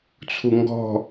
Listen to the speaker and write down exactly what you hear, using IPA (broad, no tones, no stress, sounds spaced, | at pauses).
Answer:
t͡sʰ u ŋ ɡ ɔ̤